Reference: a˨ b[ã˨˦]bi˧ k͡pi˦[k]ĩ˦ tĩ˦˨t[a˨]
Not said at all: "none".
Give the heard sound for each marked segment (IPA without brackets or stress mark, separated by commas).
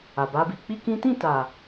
a˨˦, k, a˨